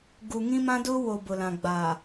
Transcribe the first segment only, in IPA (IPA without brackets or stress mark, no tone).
ɡ